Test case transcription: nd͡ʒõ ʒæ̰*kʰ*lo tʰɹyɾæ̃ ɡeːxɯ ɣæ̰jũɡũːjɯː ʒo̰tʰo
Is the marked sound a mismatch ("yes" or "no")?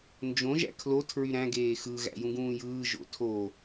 no